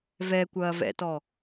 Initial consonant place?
labial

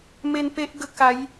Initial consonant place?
labial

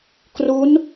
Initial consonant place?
velar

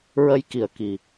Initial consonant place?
alveolar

